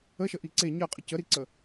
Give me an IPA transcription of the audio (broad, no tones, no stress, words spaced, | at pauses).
əʃəʔi ǀe ɲɜqʼə cəɾiǀə